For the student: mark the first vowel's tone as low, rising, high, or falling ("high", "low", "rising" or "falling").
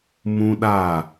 high